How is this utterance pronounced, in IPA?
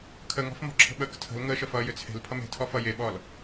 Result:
kʰ ə ŋ ɔ̤ f m ɔ̤ ǁʰ ə̤ ɓ əː k tʰ ə̤ l ŋ əː ʃ ə f ʌː j ʏ t͡sʰ e̤ l pʰ ʌ m e̤ tʰ ɔ f ʌ j e ɓ ɔ l

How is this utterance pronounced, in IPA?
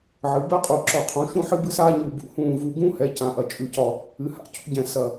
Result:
ʕ ɨ˩˧ b ɛ˦ qʼ u˨˩ ǁ ɒ˨˩ qʰ ũ˩˧ ʃ ũ˦ ħ ɨ˦ b ɨ˦ s aː˦ ɲ u˨˩ b ṵ˨˩ h ũː˨˩ v u˨˩ ɡ ũ˦ h ɛ˩˧ c ã˩˧ ʔ ɐ˨˩ t͡ʃʼ ʉ˨˩ c ɒ˨˩ | ɨ˩˧ h a̰˨˩ c ṵ˦ ɟ ɛ̃˨˩ s ɐ˨˩

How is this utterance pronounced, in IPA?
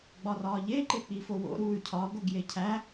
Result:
ɡ͡b ɒ r ɒː ʎ e ǃ e k͡p i f o w o̰ ɾ uː y̯ cʰ ɒ ɡ o ɡ j e cʰ æ

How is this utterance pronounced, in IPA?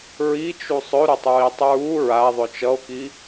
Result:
ɹ i t͡ʃ u sˤ ɵ ɾ u tˤ ɹ i tˤ ɹ u ɹ a ðˤ ɵ t͡ʃ ʌ o̯ k i

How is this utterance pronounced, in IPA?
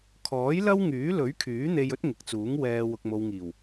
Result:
kʰ ɔː˨˥ j l ɐ˥ w ŋ yː˨˥ l ɵ˨˥ ɥ kʰ yː˨˥ n̪ e˧ j ɵ˥ t̚ ŋ ɪ˨ k̚ t͡s uː˨˥ ŋ w ɛː˧ w ʊ˨ k̚ m o˨ w ŋ iː˨˩ w

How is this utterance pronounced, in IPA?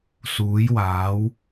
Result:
s uː˨˥ j w aː˨˥ w

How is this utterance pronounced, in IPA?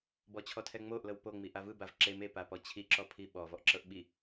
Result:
b ɔ t͡ɕʰ ɔ tʰ ɛ ŋ͡m o ʔ l ɤ w p o ŋ͡m i ʔ a v ɯ b a v ǁ e m e p a p ɔ t͡ɕʰ i ǁ ɔ pʰ i ɓ ɔ v ɔ ʔ ǁ ɤ ʔ ɓ i

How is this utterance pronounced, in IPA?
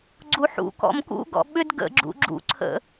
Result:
ɡ͡ǀ u ħ ṵ k ɔ̰ m k ṵ ɡ ɔ̰ ɓ ʏ d ɡ ə̰ ɡ͡ǁ ṵ ɡ͡ǁ ṵ ǀʰ ə̰

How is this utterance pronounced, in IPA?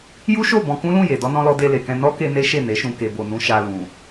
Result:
j u˦ ʃ o˦˨ b ɔ̃˧ k ũ˦ l ũ˦˨ j e˨ d ɔ˨ n ɔ̃˨ l ɔ˨ d e˧ l e˨ k ɛ̃˧ n ɔ˦ k e˧ n e˦ ʃ e˦˨ n e˨˦ ʃ ũ˧ k e˨ b o˨ n ũ˧ ʃ a˧ l ũ˨

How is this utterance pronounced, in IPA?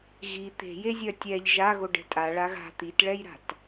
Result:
ɣ i t̪ e̤ j e zʲ œ tʲ ɛ ʎ ʒ a ɣ o ɖ ɛ̤ tʼ a ɭ a ɣ a̤ t̪ i t ɭ ɛ j ɾ a̤ t

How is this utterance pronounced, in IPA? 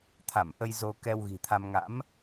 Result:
t̪ʰ a˧˩ m ʔ ə˧ j z o˧ k ɛ˧ w ɣ i̤˨˩ t̪ʰ a˧ m ŋ a̰˧˥ m

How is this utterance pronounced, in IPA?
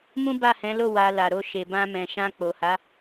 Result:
m ũ˦ b a˦˨ h ɛ̃˨˦ l o˦˨ w a˧ l a˨ ɾ o˧ ʃ e˨ b ã˧ m ɛ̃˨ ʃ ã˧ k͡p o˨ h a˨˦

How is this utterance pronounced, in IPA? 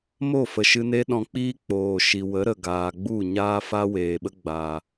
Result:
m o˦˨ f ə˨ ʃ ɨ˧ n e˦ ɗ ɔ̃˧ k͡p iː˦ k͡p oː˨ ʃ i˨ w ə˨˦ ɾ ə˨ ɡ aː˨ ɡ͡b u˦˨ ɲ aː˦ f a˦ w eː˨ ɓ ə˦ ɡ͡b a˨

